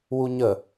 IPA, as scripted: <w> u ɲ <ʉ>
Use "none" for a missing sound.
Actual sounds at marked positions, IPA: w, ə

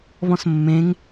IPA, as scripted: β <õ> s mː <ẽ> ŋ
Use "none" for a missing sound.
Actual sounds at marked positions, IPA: ɔ̃, ẽ

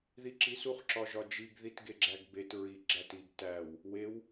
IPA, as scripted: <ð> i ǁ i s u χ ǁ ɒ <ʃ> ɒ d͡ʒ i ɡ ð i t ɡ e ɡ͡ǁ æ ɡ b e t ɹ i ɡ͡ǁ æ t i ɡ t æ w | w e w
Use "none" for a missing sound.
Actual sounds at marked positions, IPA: ð, ʒ

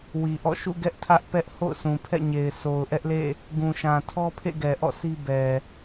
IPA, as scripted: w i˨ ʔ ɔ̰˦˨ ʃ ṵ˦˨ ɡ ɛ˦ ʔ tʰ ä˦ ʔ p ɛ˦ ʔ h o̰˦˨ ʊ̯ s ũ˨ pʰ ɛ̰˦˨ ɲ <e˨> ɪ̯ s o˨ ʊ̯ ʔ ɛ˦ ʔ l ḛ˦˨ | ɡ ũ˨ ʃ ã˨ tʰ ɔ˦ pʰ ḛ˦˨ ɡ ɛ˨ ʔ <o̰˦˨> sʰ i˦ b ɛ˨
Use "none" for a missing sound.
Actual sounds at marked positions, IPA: e˨, ɔ̰˦˨

